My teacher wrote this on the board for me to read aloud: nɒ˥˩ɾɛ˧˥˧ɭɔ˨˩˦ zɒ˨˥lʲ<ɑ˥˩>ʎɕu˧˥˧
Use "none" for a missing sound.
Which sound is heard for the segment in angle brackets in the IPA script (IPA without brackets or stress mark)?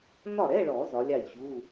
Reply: ɑ˥˩